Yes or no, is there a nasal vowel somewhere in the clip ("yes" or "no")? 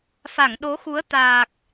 no